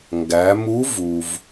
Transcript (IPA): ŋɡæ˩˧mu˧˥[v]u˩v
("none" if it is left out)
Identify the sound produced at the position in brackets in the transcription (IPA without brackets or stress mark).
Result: v